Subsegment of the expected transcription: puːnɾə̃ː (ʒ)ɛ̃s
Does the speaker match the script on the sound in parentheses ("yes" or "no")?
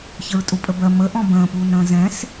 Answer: no